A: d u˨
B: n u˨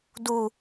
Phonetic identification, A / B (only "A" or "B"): A